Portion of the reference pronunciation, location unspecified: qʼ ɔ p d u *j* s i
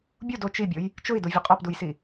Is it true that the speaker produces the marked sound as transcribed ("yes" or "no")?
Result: yes